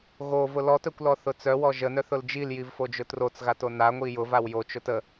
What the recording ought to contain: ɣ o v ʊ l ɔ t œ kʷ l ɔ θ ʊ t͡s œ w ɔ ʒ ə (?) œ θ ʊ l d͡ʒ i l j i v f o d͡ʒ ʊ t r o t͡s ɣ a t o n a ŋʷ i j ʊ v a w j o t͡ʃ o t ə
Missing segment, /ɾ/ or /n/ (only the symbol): n